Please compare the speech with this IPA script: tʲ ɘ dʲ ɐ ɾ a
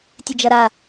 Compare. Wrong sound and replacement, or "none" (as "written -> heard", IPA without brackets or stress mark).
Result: dʲ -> d͡ʒ